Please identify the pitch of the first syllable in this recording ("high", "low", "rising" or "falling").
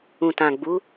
low